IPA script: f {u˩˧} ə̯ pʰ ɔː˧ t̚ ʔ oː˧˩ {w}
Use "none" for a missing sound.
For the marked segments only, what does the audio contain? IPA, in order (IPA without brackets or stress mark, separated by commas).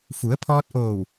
u˩˧, w